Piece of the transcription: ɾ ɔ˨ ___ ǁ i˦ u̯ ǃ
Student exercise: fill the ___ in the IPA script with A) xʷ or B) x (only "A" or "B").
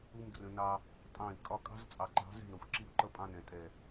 A